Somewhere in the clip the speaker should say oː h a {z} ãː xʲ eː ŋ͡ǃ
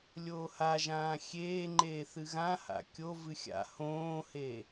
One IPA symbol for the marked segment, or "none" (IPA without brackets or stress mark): ʒ